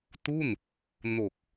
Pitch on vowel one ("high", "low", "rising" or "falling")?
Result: falling